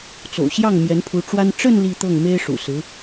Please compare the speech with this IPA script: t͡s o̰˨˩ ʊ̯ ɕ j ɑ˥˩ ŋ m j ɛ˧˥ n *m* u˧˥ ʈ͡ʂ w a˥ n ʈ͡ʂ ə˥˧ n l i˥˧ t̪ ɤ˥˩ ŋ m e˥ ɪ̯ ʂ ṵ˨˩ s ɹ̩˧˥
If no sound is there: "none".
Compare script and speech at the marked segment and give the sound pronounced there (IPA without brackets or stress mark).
pʰ